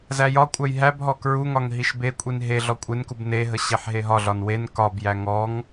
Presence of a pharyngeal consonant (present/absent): present